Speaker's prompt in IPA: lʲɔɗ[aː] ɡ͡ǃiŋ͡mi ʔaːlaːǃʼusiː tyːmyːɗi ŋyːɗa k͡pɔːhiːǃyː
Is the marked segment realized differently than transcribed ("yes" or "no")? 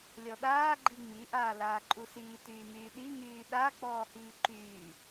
no